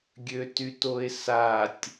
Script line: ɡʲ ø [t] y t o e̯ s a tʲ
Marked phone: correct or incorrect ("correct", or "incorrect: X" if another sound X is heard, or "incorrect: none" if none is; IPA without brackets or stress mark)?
correct